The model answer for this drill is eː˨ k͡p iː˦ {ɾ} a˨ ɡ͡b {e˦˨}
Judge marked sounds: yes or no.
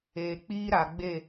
yes, yes

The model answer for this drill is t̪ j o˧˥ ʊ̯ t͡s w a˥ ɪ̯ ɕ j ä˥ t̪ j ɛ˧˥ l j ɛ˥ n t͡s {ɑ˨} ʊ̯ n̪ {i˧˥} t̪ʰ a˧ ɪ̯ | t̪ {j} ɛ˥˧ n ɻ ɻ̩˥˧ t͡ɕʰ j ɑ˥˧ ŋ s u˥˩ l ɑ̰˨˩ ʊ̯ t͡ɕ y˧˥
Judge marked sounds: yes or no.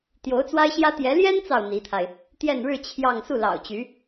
yes, yes, yes

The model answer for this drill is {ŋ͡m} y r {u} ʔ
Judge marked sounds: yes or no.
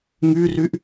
no, no

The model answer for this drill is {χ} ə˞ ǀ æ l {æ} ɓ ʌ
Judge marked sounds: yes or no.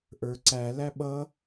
no, yes

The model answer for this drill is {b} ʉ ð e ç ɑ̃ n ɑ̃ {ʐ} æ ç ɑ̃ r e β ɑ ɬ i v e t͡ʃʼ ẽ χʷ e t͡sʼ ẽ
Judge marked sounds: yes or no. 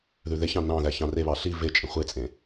no, no

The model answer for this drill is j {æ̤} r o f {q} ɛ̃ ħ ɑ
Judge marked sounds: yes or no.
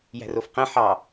yes, yes

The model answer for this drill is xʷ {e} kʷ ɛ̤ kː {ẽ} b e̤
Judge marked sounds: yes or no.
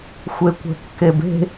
yes, no

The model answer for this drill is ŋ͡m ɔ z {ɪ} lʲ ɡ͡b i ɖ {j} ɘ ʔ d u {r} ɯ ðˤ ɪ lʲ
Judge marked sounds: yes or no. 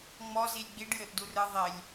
no, yes, yes

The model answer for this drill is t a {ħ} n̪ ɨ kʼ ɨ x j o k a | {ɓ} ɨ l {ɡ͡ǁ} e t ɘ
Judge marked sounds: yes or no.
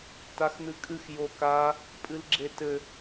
no, no, yes

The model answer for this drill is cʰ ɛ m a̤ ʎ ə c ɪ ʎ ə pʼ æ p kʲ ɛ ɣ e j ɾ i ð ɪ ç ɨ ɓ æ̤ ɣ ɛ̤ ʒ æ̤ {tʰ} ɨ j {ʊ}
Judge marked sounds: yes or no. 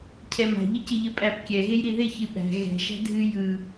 no, no

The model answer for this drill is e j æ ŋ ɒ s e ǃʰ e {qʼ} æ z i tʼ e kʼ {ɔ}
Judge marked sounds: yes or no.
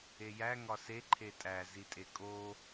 no, no

